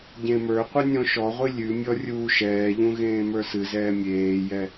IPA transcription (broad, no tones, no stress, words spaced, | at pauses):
ɟẽmə˞qʷɨ nʲɔ̃ʃɔʁʷɨ lʲʉmʲɔ rʲuːʃɛːʎũ ɣẽːmə˞sɨzɛː mʲeːjɛ